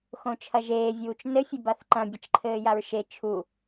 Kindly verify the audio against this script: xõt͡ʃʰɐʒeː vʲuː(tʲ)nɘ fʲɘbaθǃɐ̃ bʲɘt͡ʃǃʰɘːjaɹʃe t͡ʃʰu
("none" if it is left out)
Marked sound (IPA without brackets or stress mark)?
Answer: t͡ʃ